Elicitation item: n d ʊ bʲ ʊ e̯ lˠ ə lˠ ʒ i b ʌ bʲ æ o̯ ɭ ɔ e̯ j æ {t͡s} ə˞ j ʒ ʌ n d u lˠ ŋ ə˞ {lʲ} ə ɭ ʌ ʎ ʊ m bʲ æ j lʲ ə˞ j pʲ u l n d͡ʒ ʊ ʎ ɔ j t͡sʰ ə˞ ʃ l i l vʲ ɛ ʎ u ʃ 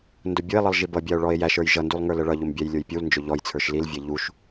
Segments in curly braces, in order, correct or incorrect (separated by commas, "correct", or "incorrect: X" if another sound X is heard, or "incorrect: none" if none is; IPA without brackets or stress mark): incorrect: ʃ, incorrect: l